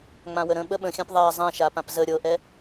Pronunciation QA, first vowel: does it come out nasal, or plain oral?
nasal